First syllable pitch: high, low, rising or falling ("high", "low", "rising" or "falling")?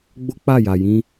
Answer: high